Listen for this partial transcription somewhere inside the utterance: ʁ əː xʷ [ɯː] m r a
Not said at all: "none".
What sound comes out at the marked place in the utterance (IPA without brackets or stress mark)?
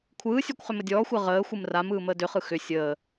ɯ